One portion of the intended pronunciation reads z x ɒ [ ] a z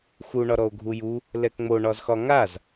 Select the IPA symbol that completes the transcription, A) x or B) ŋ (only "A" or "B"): B